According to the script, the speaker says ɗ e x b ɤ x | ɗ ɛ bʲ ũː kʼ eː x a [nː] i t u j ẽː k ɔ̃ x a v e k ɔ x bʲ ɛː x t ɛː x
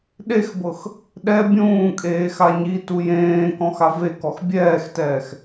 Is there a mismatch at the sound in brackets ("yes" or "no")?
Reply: yes